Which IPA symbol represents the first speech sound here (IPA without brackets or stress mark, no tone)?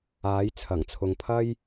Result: aː